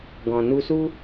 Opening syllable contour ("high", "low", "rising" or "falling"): low